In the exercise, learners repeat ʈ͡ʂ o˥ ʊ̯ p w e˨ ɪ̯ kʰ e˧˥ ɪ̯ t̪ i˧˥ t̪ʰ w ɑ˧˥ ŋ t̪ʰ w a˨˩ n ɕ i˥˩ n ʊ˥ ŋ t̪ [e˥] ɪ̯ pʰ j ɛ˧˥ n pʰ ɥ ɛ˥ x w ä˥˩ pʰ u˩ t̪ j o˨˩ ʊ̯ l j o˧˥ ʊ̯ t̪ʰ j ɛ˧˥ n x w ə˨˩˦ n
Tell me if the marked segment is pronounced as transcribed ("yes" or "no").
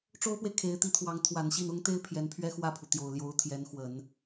yes